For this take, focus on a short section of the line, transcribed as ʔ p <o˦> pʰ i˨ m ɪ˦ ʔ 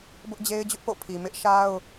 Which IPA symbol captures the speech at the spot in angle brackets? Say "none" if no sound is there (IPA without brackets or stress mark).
o̰˦˨